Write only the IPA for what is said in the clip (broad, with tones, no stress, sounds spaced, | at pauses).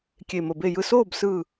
kʲ e˧˩ m ə˧˩ b e˥˩ j ɯ˥˩ s oː˥˩ b s ɯː˥˩